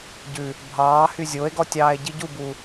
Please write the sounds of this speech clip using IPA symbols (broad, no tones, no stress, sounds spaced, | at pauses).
ɟ ʉ | bʱ ɑː h y zʲ o e̯ ɡ ɔ tʲ ɑː e̯ ɟ i ɟ u b u